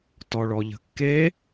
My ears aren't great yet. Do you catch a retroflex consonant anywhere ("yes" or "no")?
yes